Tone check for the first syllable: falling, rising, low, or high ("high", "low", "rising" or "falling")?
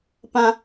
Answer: high